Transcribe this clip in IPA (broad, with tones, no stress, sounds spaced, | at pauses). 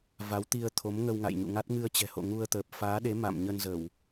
v a˨˦ w t̪ i˧ ə̯ t̪ʰ o˨˦ m ŋ ə˧ w ŋ a̰˧˨ j ɲ ṵ˧˨ ŋ a˦˥ t̚ ŋ ɨ˧ ə̯ t͡ɕ ɛ̤˨˩ h o̰˧˨ ŋ u˧ ə̯ t̪ əː˨˩ p̚ f aː˨˦ ɗ e˨˦ m a̰˧˨ m ɲ ə˧ n z ə˧˩˨ w